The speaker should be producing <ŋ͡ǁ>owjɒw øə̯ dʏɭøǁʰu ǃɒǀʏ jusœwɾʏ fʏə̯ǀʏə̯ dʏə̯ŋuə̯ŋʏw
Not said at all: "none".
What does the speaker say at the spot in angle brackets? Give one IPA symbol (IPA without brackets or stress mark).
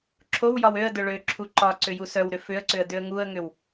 ǁʰ